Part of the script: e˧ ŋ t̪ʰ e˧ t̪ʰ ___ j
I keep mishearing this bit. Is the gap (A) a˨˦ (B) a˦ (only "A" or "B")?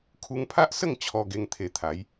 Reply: A